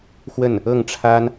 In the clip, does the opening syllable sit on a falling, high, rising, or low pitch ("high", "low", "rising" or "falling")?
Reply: falling